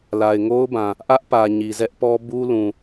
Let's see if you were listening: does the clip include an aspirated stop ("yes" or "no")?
no